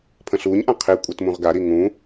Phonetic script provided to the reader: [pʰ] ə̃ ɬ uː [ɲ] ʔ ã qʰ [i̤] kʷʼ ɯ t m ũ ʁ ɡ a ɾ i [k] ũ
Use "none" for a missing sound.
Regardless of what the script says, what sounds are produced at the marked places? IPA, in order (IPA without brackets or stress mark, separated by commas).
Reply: pʰ, ɲ, i, ŋ